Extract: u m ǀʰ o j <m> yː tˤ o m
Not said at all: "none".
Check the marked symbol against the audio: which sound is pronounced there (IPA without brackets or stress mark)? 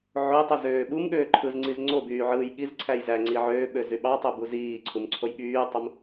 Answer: ɓ